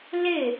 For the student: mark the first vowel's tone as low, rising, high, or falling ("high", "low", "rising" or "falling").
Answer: falling